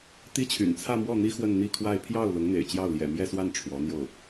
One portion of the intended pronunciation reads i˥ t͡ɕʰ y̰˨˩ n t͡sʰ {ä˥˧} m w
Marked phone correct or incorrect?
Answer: correct